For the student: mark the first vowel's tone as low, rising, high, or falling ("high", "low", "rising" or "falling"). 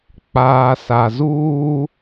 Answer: low